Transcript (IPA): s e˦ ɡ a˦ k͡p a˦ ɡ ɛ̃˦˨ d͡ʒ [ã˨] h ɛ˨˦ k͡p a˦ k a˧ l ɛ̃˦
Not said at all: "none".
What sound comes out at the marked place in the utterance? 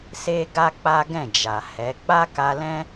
a˨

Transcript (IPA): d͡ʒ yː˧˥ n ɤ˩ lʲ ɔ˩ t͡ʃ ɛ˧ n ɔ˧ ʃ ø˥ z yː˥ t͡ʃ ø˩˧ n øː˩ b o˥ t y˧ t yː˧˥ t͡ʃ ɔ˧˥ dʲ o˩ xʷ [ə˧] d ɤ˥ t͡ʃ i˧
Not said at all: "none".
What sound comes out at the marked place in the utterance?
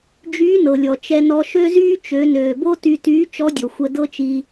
ə˧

